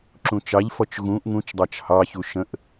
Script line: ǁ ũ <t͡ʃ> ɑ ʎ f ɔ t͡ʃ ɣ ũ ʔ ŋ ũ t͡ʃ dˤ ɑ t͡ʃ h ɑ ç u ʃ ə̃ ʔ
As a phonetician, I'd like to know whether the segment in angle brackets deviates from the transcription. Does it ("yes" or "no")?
no